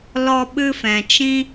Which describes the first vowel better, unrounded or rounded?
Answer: rounded